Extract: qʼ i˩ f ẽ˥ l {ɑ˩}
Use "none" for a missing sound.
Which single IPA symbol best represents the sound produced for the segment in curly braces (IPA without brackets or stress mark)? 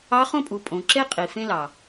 ɑ˩